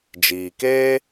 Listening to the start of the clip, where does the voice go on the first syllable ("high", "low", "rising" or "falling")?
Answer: low